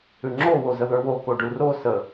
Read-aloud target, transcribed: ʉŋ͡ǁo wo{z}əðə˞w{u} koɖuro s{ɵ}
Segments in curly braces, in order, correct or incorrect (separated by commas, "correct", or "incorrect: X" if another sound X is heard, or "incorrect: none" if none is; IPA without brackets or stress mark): correct, incorrect: o, incorrect: ə